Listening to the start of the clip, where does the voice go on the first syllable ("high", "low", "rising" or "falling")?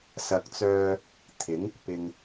low